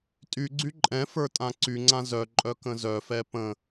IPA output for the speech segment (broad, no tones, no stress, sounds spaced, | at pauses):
tʼ y ɡ͡ǀ y ǃʼ ɛ̃ f ə˞ tʼ ã ǀ y ŋ͡ǀ ã z œ ǃʼ œ k ə̃ z œ f ɛ p ə̃